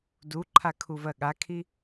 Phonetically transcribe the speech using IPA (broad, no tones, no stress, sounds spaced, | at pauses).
d u ǃʰ a kʰ u v ɜ ɠ a kʰ i